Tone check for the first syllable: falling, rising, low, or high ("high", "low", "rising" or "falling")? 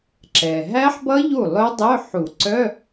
low